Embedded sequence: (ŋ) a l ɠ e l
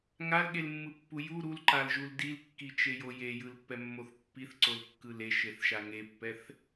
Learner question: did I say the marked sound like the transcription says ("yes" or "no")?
yes